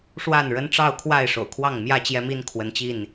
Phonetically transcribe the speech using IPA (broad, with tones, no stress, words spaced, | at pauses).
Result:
ʂwa˥˨nɻə˦n ʈ͡ʂɑ˥˨ʊ̯kʰwa˥˨ɪ̯ʂo̰˨˩ʊ̯kʰwɑ˥˨ŋ mjä˥˨t͡ɕjɛ˦mi˦n kʰwə˨˦nt͡ɕi˥˨n